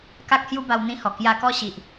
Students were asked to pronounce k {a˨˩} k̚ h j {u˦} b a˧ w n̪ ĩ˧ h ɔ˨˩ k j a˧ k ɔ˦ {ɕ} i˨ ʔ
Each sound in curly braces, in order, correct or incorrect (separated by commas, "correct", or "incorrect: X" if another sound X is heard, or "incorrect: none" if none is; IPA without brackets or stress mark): incorrect: a˦, correct, correct